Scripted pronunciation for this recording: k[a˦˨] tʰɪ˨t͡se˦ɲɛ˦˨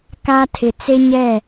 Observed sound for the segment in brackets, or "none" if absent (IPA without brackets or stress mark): a˦